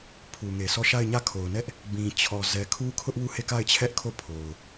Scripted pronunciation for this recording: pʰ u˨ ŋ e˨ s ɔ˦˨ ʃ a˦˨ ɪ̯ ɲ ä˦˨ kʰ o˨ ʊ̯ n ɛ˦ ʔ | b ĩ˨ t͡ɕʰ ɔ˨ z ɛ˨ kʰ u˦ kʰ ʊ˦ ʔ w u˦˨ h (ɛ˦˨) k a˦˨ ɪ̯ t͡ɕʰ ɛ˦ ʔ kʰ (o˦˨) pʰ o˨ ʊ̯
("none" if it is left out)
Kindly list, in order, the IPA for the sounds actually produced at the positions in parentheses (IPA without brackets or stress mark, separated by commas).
e˦˨, o˦˨